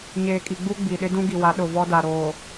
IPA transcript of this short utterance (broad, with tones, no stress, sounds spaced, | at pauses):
ɲ eː˨ kʼ i˨ ɡ͡b u˦ ɡ͡b i˨ ɗ ɪ˦ d ũ˦ ɡ i˨ w a˨˦ ɗ ʊ˨ v ɔ˦ d a˨ ɾ oː˨